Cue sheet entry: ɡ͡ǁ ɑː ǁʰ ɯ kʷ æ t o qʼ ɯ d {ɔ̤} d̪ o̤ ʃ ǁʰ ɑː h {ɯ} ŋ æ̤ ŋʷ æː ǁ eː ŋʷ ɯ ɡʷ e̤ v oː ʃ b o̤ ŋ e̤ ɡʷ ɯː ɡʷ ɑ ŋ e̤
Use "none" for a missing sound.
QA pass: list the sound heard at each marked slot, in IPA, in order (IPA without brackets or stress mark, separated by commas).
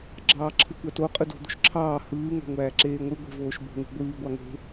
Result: o̤, ɯː